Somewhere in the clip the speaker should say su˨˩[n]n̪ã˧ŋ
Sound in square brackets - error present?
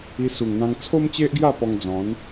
yes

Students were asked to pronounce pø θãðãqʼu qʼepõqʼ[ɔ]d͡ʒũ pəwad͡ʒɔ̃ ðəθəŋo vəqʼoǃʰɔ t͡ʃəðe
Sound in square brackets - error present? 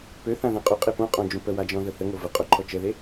yes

